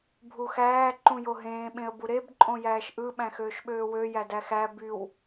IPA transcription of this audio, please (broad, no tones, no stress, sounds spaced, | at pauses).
bʱ u x æː ǃ ũ j o ɦ ẽː ɓ ẽ ə̯ b u ɾ e b ǃʼ õ j æː ʃ ʔ ɯ ɓ æ̃ x øː ʃ ɓ øː w ø j æ d æ x æ b y w